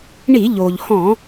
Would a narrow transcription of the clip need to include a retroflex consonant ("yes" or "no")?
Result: yes